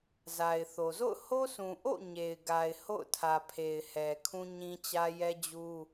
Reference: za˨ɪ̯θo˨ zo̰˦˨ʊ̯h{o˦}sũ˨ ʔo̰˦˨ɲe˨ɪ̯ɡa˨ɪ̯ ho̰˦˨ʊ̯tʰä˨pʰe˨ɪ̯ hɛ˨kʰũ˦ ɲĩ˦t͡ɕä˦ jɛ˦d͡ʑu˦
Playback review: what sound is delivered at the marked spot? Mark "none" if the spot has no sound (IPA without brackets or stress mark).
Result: o˦